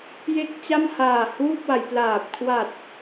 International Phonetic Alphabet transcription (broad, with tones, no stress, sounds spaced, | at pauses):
j e˥˩ k̚ t͡ɕ a˥˩ m h aː˨˩ h uː˥˩ p̚ w a˩˦ j p l aː˨˩ p̚ kʰ w a˨˩ t̚